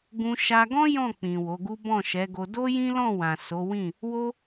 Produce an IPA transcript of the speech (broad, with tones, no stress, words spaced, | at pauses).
ɡũ˧ ʃa˧ɡɔ̃˦ jɔ̃˦˨k͡pĩ˨ wo˨˦ɡu˦ bɔ̃˦˨ʃɛ˨˦ɡo˧ do˦jĩ˦lɔ̃˦˨wã˨ so˨˦wĩ˦˨ | wo˦